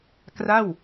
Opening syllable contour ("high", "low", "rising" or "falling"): falling